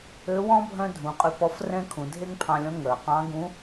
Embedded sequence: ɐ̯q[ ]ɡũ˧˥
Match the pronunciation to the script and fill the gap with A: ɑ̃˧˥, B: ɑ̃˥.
A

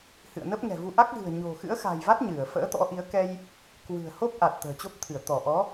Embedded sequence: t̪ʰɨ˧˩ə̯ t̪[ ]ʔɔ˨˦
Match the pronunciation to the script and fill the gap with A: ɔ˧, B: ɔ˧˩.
B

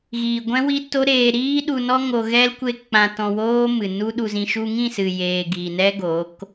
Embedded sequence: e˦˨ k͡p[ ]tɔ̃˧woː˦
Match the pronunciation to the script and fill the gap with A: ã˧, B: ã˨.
A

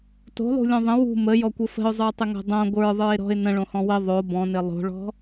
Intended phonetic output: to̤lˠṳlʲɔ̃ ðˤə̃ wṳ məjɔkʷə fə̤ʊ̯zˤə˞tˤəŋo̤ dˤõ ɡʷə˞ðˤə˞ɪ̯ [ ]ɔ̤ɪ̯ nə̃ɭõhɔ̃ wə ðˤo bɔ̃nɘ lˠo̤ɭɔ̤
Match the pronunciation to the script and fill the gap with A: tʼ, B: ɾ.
B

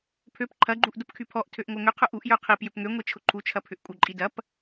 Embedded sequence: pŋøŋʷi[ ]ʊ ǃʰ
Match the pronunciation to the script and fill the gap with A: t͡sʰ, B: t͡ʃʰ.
B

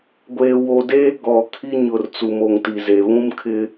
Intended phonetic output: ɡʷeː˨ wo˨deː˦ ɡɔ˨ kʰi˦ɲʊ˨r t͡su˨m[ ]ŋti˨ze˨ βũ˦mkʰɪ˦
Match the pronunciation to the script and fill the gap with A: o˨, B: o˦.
A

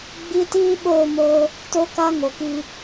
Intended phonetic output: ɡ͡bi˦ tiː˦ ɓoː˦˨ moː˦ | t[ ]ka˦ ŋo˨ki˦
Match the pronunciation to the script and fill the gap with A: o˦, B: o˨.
A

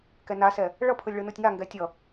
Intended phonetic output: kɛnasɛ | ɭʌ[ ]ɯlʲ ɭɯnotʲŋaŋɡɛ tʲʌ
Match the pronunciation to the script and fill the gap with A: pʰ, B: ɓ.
A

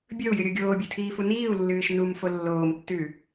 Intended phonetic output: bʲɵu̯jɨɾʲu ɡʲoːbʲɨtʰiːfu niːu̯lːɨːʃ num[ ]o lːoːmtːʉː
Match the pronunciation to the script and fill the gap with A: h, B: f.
B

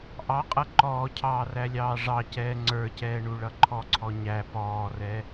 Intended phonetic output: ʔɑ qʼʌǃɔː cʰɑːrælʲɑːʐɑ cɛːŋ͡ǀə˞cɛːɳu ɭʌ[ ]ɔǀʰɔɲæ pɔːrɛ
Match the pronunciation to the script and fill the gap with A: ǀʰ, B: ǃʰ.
B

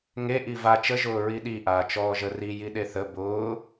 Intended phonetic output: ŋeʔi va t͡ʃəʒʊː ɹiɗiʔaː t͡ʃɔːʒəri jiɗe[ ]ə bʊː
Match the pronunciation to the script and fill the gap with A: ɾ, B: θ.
B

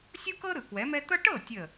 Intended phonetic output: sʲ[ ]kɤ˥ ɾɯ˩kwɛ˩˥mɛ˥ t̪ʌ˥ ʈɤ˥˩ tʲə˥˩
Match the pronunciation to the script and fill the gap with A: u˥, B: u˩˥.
A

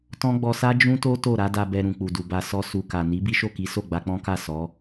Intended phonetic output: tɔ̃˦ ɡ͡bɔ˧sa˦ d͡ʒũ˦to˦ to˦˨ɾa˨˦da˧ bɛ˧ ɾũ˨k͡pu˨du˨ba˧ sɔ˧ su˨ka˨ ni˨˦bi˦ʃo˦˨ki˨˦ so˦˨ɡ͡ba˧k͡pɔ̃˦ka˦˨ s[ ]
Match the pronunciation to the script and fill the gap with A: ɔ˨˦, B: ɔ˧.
A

